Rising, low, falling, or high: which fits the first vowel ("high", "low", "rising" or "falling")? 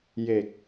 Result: low